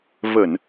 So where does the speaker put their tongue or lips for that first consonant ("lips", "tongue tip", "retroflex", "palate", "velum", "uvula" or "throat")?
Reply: lips